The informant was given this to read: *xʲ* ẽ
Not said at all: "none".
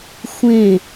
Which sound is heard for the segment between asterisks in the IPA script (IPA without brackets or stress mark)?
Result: xʷ